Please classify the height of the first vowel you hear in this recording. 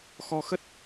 mid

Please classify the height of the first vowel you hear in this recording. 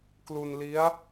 high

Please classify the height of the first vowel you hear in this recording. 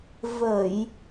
mid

